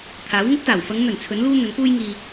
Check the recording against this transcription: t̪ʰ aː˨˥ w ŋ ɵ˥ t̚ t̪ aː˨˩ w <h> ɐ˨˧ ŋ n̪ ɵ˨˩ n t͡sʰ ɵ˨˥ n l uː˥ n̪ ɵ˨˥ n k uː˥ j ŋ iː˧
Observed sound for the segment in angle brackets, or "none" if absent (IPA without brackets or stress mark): f